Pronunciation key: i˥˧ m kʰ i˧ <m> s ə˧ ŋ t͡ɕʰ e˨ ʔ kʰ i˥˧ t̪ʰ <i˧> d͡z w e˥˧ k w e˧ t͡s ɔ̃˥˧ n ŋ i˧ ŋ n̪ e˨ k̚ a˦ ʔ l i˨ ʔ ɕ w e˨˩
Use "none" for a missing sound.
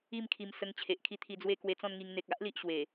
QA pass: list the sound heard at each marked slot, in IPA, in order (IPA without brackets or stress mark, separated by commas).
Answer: m, i˧